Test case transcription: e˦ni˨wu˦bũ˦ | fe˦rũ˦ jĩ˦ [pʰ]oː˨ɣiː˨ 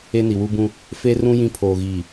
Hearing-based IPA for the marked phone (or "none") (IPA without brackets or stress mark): pʰ